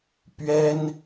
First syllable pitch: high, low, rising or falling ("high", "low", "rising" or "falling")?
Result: high